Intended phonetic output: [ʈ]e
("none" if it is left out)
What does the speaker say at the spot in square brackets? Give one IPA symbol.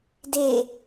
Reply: d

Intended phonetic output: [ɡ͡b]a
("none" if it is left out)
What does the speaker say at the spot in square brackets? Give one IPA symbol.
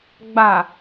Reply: ɡ͡b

